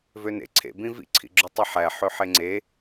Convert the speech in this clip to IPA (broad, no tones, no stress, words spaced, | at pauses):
vønḛ ǀʰḛbĩ vḭǀʰḭɡ͡ǁu tˤiħæ ħøħeŋ͡ǀe